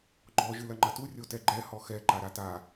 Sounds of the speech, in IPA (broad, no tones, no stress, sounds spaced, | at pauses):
ɡ͡ǃ ɔ ʒ ɨ l ɐ ŋ͡ǃ ɐ t u rʲ o t ɛ ɡ͡ǃ ɛ h ɔ x ɛ ǃ a ɾ a t a